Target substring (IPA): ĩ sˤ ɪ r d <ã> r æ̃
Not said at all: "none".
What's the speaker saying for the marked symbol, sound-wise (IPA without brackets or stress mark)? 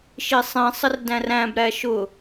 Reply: æ̃